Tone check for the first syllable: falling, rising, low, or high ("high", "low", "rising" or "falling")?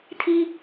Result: high